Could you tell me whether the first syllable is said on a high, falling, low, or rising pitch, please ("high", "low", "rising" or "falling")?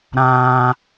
low